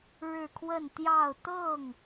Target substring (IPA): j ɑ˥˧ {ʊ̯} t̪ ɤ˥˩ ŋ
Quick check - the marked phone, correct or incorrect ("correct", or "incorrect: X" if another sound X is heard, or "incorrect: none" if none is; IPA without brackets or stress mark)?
correct